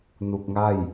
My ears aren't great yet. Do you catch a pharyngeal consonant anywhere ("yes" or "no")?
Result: no